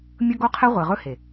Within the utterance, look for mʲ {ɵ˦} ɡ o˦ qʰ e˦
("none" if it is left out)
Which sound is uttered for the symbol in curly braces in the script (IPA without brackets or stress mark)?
ɵ˦